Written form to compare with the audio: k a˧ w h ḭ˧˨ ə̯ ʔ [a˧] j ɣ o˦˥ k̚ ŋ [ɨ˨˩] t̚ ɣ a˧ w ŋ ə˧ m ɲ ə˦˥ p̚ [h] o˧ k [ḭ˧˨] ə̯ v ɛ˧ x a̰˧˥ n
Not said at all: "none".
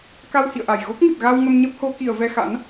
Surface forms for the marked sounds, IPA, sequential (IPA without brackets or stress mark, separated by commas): a˨˩, ɨ˨˩, h, i˧˩